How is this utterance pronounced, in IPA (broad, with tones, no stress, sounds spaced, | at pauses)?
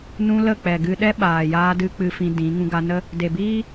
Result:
n ũ˦ l ə˦˨ k͡p ɛ˨ ɡ ɨ˧ ɗ ɛ˦ ɓ aː˨ j aː˧ d ɨ˦ k͡p ɨ˧ f ĩ˧ d ĩ˨˦ ŋ ũ˧ ɡ a˧ n ə˦ | d e˨ b iː˦